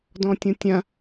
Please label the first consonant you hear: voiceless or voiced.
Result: voiced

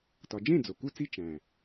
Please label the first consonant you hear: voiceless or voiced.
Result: voiceless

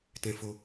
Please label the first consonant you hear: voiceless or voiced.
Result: voiceless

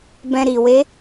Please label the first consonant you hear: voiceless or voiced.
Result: voiced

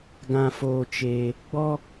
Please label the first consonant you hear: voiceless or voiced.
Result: voiced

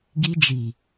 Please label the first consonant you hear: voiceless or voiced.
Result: voiced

